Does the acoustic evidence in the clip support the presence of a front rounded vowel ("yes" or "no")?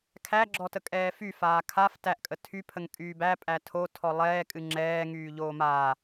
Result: yes